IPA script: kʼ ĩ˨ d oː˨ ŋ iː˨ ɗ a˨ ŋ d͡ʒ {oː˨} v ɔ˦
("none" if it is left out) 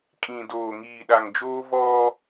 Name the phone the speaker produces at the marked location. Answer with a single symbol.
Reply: oː˦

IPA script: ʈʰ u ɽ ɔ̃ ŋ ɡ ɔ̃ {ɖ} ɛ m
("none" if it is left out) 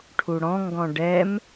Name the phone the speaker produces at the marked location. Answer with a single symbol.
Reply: ɖ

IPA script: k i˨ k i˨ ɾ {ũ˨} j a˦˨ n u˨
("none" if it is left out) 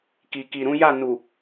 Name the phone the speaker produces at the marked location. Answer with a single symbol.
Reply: ũ˨˦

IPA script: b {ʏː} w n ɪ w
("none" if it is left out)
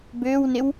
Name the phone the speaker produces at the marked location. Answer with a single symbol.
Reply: ʏː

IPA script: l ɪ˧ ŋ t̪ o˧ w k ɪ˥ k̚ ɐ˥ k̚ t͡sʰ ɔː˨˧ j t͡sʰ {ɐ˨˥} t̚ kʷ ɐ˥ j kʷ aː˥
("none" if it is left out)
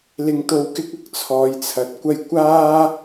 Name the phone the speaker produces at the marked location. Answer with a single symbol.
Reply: ɐ˨˥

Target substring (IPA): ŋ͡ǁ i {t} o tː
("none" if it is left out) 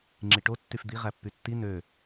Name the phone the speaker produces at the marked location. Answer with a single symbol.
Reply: ʈ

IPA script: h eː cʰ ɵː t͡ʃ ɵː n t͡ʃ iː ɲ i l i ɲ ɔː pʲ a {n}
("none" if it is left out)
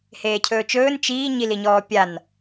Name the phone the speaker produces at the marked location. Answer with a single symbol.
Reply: n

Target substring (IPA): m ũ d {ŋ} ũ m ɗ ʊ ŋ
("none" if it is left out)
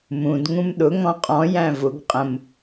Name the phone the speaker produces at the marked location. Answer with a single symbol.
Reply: ŋ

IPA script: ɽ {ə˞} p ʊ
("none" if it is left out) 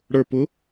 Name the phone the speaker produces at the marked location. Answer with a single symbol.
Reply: ə˞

